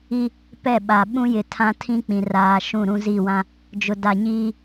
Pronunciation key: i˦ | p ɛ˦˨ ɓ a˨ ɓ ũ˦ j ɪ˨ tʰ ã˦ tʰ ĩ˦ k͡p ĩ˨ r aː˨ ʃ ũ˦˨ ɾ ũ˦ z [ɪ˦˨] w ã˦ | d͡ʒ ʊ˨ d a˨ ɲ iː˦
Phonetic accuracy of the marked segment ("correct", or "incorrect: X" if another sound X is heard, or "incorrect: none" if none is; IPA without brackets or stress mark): incorrect: i˦˨